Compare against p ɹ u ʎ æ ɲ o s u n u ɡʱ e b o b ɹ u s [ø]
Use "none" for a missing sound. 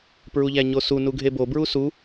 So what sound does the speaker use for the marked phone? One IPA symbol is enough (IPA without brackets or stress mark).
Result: u